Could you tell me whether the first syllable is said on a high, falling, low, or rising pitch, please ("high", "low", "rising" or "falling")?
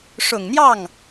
low